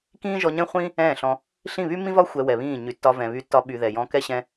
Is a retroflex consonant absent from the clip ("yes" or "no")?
yes